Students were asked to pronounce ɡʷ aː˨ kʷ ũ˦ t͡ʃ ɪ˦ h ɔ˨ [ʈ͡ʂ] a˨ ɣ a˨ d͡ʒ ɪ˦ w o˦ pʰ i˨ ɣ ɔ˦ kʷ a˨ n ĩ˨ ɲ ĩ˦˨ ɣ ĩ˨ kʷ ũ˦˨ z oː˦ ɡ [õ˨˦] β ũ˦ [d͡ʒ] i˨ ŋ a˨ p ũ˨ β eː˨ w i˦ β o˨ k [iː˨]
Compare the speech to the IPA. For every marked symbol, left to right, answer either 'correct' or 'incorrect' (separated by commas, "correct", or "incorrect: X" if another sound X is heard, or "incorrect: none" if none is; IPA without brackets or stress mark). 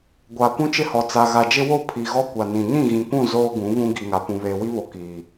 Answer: incorrect: t͡s, incorrect: ũ˨˦, incorrect: ɡ, correct